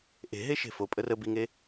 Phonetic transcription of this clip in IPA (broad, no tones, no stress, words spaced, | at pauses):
ʔe̤ɦe ʃe̤fopʼə rəbiŋe